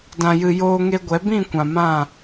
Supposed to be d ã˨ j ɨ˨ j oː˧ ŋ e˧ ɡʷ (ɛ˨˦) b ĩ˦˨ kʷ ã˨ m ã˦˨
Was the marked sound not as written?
no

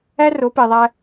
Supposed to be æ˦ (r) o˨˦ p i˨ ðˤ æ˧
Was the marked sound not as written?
no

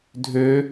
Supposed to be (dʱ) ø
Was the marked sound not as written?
no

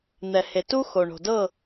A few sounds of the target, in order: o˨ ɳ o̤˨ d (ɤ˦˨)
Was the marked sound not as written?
no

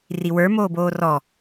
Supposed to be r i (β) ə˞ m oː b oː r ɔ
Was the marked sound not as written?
yes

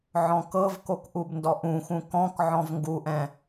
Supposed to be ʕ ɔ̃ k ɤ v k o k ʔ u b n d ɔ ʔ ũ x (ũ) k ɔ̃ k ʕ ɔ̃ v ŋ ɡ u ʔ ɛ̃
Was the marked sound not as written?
no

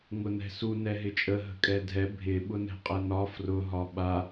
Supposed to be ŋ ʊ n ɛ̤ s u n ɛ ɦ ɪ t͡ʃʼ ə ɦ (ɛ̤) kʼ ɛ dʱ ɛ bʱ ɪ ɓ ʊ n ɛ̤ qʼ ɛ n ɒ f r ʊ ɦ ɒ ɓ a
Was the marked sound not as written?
yes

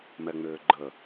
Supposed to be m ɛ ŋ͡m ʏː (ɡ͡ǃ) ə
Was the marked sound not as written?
no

